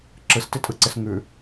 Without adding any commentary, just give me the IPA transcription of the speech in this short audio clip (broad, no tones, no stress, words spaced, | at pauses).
ǁɯstɪtʼɯǀɪs ŋʉ